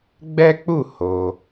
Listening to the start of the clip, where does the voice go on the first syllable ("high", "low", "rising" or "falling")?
high